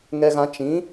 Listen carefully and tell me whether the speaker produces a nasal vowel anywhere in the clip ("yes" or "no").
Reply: yes